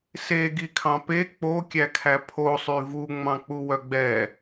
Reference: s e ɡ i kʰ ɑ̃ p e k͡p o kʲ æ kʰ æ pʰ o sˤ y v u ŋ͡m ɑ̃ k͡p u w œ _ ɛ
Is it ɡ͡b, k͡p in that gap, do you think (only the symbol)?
ɡ͡b